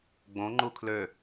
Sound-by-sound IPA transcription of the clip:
ɡ͡b õ ŋ͡ǃ u kʰ l ø

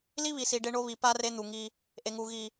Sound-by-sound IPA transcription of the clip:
l i˦ β i˨ s i˨ ɖ e˦ ɳ o˦ β i˨ p a˦ r e˦ n̪ u˨ ŋ i˦ | ʔ e˨ ŋ u˨ ɣ i˨

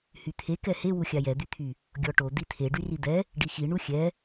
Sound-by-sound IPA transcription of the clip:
h y t̪ʰ e k ɛ h e w u xʲ a j ɛ d̪ y t̪ʰ y | ɡʲ ɔ ʈ o d̪ i t̪ʰ e ɖ y r i d̪ ɛ | ɖ i x i ɳ u xʲ ɛ

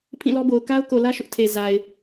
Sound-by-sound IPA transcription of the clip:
pʰ ĩ˦˨ l ɔ˦ b o˨ ʊ̯ k a˦ ʊ̯ k o˨ l ä˦ ʃ ʊ˦ ʔ tʰ e˨ z a˨ ɪ̯

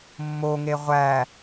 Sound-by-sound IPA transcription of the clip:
mː o ŋ e ʁʷ æ

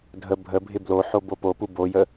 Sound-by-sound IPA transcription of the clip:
dʱ ə bʱ ə bʱ ɪ b l o ħ o b o p o p u b o j ə

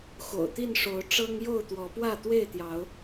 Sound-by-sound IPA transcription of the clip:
x o̰˨˩ ʊ̯ t̪ i˥˨ n ʂ o˨˦ ʊ̯ ʈ͡ʂ ɤ˦ ŋ j o˥˨ ʊ̯ t̪ w ɔ˨˦ p w ä˥˨ t̪ w e˥˨ ɪ̯ t̪ j ɑ˨˦ ʊ̯

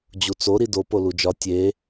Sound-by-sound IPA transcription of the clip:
d͡ʑ u t͡s o ɾ i d o p o l u d͡ʒ ɒ tʲ e

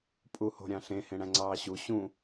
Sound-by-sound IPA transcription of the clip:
pʼ u h o̤ ɾʲ ɑ̃ ɬ ẽ h ẽ ɽ æ̃ ŋ͡ǀ ɑː ɕ u ɕ ũ

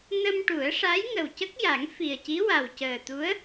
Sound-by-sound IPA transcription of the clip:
n ə˧ m ʈ u˨˩˦ ə̯ ʂ a˧˥ j ŋ ə˨˩ w c ə˦˥ k̚ j a˨˩˦ ŋ f i˨˩ ə̯ c i˧˥ w a˨˩ w c əː˨˩ t̪ u˧˥ ə̯

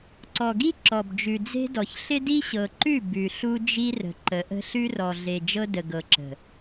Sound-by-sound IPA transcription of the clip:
ǀ ɔ˨ ɡ i˦ ǁ ɔ˨ b d͡ʒ ʉ˨ d͡z e̤˦ d ɔ˨ ç ɬ ɪ˦ d i˦ ɕ ɤ˨ ǃ ʉ˦˨ b ʉ˨ ɬ u˦ d͡ʒ i˦ r ə̤˨ ǃ ə˨˦ ʔ ə̤˦ ɬ ʉ˦ r ɔ˨ ɮ e˨ d͡ʒ ɤ˦ d ə˨ ɡ ɤ˨ ǁ ə̤˨

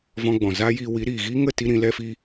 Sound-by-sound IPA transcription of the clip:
v ɔ̃˧ ɡ͡b ɔ̃˨ z aː˦ j iː˧ w i˨˦ ɾ iː˨ ɣ iː˦ ŋ ə˦˨ t i˦ ɾ ĩ˨˦ l ɛ˦ f i˦

